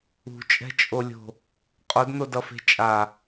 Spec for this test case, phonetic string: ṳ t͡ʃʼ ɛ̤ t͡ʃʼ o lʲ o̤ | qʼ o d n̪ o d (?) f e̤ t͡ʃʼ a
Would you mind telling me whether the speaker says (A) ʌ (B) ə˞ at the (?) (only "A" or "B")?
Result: A